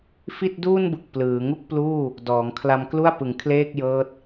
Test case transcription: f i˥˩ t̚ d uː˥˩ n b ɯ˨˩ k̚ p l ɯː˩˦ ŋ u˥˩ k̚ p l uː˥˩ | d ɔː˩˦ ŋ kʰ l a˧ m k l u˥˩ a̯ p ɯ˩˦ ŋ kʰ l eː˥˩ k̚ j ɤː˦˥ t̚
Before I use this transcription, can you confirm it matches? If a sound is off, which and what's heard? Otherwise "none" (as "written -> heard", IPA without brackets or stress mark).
none